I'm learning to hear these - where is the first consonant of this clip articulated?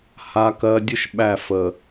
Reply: throat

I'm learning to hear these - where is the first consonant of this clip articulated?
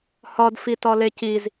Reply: throat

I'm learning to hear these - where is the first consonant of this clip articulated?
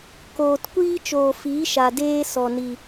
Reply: velum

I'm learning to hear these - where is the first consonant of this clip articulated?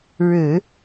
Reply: retroflex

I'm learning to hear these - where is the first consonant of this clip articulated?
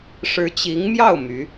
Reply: retroflex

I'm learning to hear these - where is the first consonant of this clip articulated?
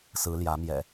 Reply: tongue tip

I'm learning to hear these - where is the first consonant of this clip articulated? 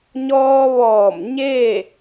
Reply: palate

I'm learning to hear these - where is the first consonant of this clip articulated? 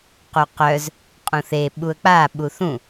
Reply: uvula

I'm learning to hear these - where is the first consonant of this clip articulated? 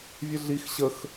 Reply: lips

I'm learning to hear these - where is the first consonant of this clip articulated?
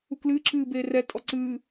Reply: velum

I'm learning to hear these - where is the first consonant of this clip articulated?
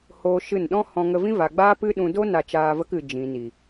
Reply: throat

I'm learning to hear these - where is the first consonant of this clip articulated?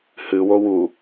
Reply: throat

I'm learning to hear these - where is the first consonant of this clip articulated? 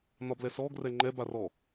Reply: tongue tip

